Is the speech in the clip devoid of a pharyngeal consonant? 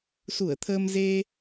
yes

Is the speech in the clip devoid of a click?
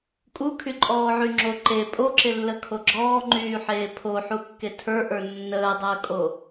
no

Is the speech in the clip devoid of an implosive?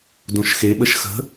no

